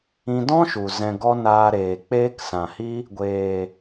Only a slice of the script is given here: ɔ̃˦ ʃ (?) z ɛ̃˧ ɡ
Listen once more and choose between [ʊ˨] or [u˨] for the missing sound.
u˨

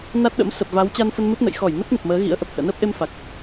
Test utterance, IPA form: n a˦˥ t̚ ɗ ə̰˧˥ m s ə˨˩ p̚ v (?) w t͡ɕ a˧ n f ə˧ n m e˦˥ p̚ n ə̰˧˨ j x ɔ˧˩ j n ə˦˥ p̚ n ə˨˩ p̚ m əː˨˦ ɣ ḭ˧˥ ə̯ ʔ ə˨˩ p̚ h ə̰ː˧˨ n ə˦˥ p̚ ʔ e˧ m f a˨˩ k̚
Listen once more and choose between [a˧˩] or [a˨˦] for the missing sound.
a˨˦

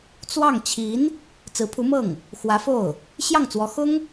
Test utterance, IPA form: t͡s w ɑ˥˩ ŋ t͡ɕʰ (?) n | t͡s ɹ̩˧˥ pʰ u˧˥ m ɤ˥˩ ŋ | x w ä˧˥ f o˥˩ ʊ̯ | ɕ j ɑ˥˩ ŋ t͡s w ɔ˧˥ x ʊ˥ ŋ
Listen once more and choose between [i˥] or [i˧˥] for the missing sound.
i˧˥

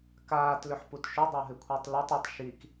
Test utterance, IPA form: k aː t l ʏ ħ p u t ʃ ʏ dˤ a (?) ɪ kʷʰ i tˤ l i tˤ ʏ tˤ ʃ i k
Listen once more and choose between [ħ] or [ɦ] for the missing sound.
ɦ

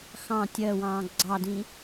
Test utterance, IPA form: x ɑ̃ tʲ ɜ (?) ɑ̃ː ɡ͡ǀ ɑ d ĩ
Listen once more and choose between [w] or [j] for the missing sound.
w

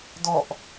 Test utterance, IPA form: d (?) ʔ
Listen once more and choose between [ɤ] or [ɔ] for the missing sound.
ɔ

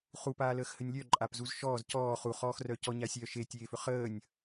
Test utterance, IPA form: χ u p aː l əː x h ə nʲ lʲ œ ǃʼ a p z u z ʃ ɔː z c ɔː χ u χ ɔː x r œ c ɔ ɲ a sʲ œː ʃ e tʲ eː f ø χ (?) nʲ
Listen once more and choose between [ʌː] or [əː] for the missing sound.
əː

